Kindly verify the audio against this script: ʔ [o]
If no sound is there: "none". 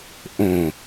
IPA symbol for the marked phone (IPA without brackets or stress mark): õ